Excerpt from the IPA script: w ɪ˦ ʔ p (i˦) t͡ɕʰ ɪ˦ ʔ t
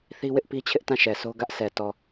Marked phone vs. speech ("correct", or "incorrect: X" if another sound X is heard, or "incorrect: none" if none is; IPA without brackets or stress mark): correct